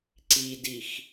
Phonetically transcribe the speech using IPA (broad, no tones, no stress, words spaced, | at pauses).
ǀidix